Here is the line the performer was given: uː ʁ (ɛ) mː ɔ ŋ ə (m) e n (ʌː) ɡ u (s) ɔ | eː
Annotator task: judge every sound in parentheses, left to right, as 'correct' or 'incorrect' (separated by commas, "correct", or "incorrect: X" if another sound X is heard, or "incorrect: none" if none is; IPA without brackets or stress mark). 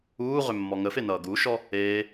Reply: incorrect: ʏ, incorrect: f, correct, incorrect: ʃ